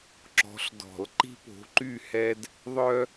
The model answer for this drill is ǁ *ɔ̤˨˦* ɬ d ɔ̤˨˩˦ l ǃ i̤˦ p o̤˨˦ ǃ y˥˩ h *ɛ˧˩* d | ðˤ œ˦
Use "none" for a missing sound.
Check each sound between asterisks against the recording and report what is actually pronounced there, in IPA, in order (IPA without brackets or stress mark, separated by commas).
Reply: ɔ̤˨˦, ɛ˦